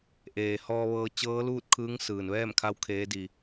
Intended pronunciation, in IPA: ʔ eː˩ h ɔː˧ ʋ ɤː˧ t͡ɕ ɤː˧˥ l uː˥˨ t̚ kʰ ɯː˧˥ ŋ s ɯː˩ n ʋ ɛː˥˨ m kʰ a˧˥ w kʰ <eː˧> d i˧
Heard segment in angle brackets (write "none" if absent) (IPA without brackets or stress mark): eː˧˥